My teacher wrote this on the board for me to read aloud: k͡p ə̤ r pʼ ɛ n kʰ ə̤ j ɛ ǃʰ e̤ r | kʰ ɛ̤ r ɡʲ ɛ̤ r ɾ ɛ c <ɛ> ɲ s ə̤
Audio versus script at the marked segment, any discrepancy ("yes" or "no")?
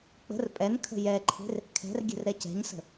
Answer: yes